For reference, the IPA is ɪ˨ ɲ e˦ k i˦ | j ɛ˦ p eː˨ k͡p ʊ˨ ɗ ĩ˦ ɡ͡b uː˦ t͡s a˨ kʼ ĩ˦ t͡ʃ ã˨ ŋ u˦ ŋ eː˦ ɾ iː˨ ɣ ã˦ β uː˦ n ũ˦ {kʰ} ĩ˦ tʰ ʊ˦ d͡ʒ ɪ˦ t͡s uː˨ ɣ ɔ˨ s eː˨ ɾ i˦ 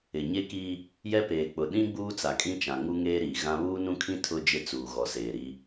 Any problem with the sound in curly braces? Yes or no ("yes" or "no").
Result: no